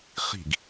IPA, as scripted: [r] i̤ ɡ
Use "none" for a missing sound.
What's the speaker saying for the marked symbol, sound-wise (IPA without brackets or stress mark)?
χ